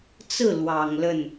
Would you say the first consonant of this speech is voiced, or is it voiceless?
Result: voiceless